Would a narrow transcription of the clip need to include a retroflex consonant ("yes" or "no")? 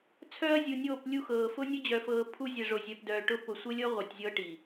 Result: yes